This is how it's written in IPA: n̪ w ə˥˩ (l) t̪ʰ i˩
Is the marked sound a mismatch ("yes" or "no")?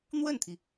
yes